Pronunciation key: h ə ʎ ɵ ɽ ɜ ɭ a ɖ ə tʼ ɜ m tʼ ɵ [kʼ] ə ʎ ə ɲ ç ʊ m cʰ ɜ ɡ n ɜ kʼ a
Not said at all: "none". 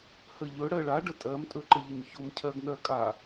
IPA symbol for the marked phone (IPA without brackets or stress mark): ǃ